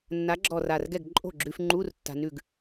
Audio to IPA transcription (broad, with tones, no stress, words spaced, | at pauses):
nːa˨˥ɡ͡ǁɔ˧˩ra˧˩rɡɛ˥˩ɡ ǃʼo̤˥˩ɡ͡ǁʉ˧fŋ͡ǃu˧˥˧r tːa̤˧nʉ˥˩ɡ